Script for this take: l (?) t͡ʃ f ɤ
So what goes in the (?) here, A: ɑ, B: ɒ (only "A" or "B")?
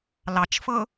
A